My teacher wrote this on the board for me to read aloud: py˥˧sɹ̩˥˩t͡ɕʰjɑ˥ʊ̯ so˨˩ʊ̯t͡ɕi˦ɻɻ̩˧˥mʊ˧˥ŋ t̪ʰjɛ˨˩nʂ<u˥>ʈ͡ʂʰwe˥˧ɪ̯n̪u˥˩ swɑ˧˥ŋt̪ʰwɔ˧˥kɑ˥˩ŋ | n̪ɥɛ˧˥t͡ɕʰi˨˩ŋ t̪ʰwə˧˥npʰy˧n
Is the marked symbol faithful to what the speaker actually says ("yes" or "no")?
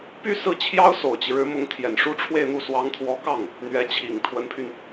yes